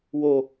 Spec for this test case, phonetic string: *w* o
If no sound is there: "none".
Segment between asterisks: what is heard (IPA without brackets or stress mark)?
w